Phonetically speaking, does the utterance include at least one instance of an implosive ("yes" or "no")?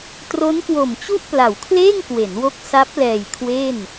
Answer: no